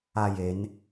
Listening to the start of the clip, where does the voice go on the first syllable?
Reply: falling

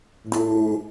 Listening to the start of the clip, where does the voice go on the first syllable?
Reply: low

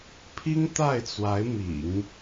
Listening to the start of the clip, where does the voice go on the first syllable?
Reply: high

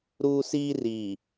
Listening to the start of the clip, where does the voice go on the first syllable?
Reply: high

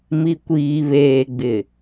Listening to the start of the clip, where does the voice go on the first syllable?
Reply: low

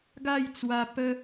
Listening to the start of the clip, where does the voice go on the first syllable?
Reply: falling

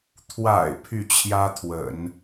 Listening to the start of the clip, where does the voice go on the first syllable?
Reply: low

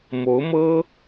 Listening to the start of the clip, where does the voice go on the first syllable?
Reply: rising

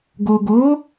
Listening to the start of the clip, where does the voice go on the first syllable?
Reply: low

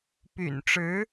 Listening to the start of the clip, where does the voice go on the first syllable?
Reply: low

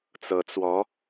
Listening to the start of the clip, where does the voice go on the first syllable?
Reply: rising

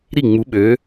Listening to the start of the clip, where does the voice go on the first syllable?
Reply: falling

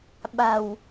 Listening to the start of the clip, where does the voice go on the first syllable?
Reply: low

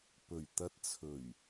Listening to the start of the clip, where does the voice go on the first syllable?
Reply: low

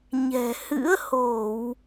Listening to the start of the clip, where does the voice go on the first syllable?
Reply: low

